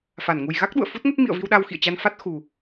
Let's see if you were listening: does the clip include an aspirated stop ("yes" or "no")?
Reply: no